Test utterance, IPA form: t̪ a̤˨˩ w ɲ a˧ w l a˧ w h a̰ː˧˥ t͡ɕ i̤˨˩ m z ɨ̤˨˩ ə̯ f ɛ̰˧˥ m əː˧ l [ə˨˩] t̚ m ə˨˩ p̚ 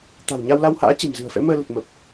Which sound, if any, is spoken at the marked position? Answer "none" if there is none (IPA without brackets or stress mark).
ə˨˩